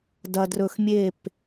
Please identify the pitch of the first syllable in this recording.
low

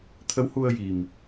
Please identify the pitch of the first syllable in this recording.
rising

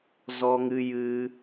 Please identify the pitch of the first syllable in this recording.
high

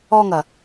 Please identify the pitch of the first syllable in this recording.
high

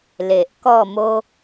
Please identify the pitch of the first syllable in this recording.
low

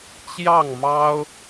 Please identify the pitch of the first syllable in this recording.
falling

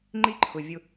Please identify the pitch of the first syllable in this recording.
high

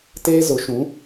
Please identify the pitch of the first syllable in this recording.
high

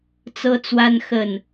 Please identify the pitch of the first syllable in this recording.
high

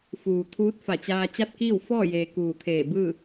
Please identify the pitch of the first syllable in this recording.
low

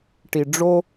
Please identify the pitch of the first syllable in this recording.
low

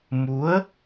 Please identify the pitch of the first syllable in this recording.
rising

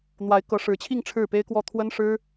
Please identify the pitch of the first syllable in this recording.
rising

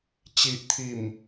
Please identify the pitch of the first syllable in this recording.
low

